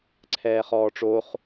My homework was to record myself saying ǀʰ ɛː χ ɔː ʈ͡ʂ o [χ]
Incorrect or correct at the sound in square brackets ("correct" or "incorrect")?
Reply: correct